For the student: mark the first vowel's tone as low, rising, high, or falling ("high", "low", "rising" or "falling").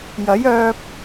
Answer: rising